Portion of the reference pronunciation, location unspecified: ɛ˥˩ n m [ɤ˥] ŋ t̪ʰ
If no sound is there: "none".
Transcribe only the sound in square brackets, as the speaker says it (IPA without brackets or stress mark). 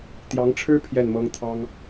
ɤ˥